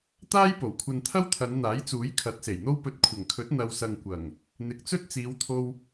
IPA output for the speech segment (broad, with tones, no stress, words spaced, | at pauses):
t̪aː˥jpo˨˩wkʷʰɐ˧n t̪ʰɐ˥wt̪ʰɐ˨˧nn̪aː˨˥jt͡suː˨˥j kʰɐ˨˥t̚se˨˩jn̪o˥w pɵ˨t̚kʷʰɐ˨˩ŋkʰɵ˨˥t̚ n̪ɐ˨wsɐ˨ŋkʷɐ˨˩ŋ | n̪ɪ˨k̚t͡sɵ˥t̚ t͡siː˨˧wt̪ʰo˧w